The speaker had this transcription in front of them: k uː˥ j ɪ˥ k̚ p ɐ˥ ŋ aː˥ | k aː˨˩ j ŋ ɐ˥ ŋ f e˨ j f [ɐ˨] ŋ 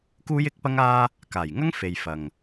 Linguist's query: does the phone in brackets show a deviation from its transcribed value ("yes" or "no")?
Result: no